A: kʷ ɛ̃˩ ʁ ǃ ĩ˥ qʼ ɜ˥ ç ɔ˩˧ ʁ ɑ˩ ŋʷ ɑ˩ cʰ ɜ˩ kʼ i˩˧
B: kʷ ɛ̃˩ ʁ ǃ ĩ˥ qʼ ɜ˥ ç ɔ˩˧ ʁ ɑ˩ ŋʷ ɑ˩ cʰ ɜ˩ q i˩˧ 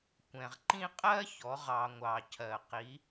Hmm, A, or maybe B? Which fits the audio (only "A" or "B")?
B